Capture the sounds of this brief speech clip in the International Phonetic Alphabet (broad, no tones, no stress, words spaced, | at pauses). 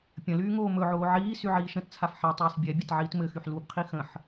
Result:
pʲə̃lyː ŋoːmɵʕoː ʕiː syʕiːʃə̃tt͡sʰaf ħɛ tˤyːsbʲɛbʲɛt ʕiːtmɘxyħ lubqʰi xə̃ħ